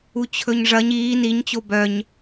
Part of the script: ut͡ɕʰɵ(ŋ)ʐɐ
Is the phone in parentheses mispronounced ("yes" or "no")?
yes